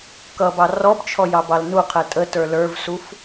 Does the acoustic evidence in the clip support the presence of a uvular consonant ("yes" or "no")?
yes